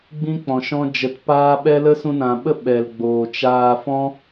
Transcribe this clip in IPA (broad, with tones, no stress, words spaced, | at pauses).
ɡ͡bĩ˦ k͡pɔ̃˨ ʃɔ̃˦d͡ʒə˨˦t paː˦ɓɛ˦ lə˦sũ˧nã˨ɓə˦ ɓɛ˨lɡ͡boː˨t͡ʃaː˧ fɔ̃˦